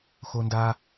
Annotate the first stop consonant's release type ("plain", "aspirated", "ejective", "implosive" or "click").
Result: plain